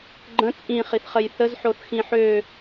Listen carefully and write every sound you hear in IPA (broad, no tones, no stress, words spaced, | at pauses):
ɡ͡ǃə̃ t͡sʼĩχiθχəj θəzħoθxĩ ħø